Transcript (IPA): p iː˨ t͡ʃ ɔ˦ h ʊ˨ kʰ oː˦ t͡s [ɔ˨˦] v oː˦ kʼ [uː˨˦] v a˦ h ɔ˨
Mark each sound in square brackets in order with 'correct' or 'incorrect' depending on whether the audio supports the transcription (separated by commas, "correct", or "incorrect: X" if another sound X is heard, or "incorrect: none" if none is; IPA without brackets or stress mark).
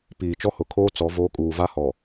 correct, incorrect: uː˨